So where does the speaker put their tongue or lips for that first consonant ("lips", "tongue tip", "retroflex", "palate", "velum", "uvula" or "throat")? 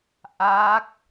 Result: throat